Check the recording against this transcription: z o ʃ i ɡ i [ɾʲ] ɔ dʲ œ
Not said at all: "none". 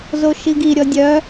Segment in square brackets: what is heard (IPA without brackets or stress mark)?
ɾʲ